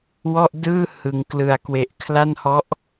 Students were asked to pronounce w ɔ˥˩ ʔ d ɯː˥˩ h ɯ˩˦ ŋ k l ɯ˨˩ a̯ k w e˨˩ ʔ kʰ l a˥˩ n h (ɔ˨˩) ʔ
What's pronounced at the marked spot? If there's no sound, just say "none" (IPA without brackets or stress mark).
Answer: ɔ˦˥